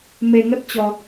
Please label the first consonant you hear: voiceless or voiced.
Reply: voiced